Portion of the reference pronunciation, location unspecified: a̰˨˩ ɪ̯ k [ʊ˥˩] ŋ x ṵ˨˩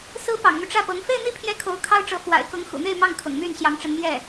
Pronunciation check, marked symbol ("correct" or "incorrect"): incorrect